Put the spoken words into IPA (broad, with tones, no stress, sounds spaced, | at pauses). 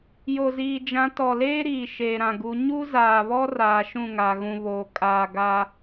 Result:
j o˨ z iː˨ d͡ʒ ã˨˦ t ɔ˨ l eː˦ ɾ iː˨ ʃ eː˨ ɾ ã˨ ɡ u˨˦ ɲ u˦ z aː˨ β ɔ˦ r aː˨ ʃ ũ˦˨ ŋ a˨ ɣ ũ˨ β oː˨ kʼ aː˨ ɡ aː˦